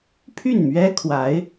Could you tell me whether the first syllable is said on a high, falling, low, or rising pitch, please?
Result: falling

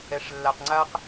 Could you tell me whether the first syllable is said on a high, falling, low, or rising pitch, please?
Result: low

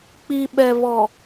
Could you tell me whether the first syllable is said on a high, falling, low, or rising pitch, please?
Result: low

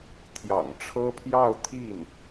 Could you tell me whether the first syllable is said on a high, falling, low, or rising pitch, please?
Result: low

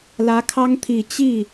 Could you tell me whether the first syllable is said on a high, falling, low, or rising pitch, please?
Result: rising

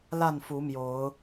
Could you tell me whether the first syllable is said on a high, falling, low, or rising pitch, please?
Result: falling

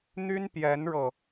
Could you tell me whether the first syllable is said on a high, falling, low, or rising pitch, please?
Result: high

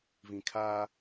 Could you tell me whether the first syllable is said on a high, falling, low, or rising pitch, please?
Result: low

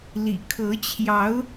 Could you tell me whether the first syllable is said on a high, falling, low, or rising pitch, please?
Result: low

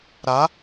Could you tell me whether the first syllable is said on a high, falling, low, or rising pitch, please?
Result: rising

